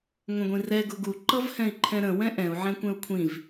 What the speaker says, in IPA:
ŋʷə̃ɡʷĩrɛ ɡʊɡu ǃʌvhɛ̃i̯ǃʰɛ̃ɾə̃ wɛ̃ʔɛ̃u̯ ʕɛ̃kʷɛ̃u̯kʷʰĩv

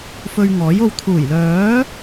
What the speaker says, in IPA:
fɵ˧ɥŋɔː˨˥jo˧w t̪ʰuː˨˩jlœː˨˥

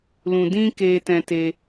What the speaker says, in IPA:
lũ˧dĩ˦ ke˧ tɛ̃˧te˧

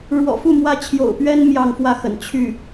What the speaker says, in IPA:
ɻwɔ̰˨˩fu˥˩ mwä˥ t͡ɕʰjo̰˨˩ʊ̯ pɥɛ˥n mjɑ˥˧ŋfwä˥˩xə̰˨˩n t͡ɕʰy˥˩

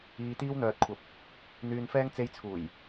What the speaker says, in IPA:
iː˨t̪iː˧wn̪œː˨t̚kʷʰɐ˨˥p̚ | n̪yː˨nfɛː˧ŋ t͡se˨˧jt͡sʰuː˨˩j

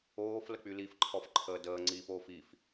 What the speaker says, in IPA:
oːf lək͡pylifǃʰɔf ǃʰəːdəːŋ͡ǀiːf oːfif

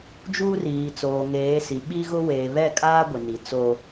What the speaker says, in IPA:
d͡ʒuː˦riː˨t͡soː˨ŋeː˨˦ si˨ɓi˦ɣʊ˦ weː˨βɛ˦˨kʼaː˦ ɡʷɪ˨ni˨t͡so˦

